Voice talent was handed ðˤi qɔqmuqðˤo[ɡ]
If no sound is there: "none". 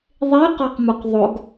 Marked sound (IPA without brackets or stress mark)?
ɡ